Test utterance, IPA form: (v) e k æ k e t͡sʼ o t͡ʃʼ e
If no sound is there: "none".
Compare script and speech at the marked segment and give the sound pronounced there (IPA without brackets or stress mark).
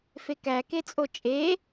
f